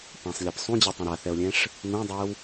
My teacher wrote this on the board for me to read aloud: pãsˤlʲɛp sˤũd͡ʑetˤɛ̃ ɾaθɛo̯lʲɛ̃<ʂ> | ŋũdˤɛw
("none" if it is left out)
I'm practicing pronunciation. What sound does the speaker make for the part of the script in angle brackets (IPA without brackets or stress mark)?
ʂ